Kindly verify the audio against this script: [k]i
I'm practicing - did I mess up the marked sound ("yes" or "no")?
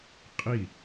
yes